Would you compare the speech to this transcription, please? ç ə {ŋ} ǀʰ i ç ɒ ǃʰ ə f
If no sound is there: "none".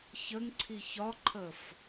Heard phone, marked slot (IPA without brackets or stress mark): ŋ